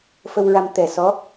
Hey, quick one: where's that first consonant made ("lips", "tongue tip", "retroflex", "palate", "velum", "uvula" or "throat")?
lips